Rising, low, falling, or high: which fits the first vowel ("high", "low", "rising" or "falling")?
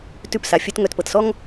falling